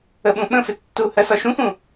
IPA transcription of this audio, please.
ə ɓ ũ ɓ ə̃ f ɪ tː u h ɜ s ɒ ʃ ũ x ũ

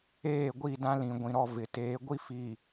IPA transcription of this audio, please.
eː˦˨ ɡʷ i˦˨ d ã˦ l ĩ˨ ɡʷ ĩ˨ ɾ ɔ˦˨ v ɪ˨ t eː˨˦ ɡʷ i˦ f i˨

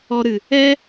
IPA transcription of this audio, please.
ɔ˧ ɾ ɨ˨ | ɛ˦

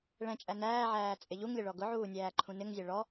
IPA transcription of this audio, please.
ɭ ɛ̃ t͡ʃʼ æ n æː ʕ æː t͡sʼ ɪ ʎ u ŋ lʲ ə ɭ ɔ ɡ ʊ ʕ uː nʲ æː ǃʰ ũ n ɪ ŋ zʲ æ ɭ ɔ

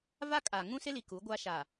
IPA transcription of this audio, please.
v a˦ kʼ a˨ ŋ ũ˦ s ɪ˦ l i˨ k u˨˦ ɡʷ a˦ ʃ a˨

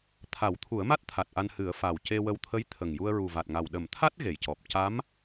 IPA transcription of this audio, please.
t̪ʰ a˨˩˦ w t̪ʰ u˨˩˦ ə̯ m a˦˥ t̚ t̪ʰ a˨˩ t̚ ʔ a˧ n h ɨ˨˩˦ ə̯ f a˨˩ w c e˧ w ə˧ w t̪ʰ ə˧˥ j t̪ʰ ə˨˩ ŋ j u˧ ə̯ ɹ u˨˩ v a˨˩ t̚ ŋ a˨˩ w ɗ ə˨˩˦ m t̪ʰ a˦˥ t̚ ɣ e˨˩˨ j c ɔ˨˩ p̚ c a˧˥ m

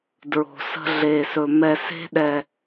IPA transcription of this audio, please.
d ɹ o̤˨ s ə̤˧ ɮ e˨ s ɵ˨ m ɛ˨ s e̤˧ ɗ ɛ˨

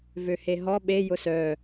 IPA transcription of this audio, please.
v ø h e ɦ ɔ ɓ e j ʊ s œ

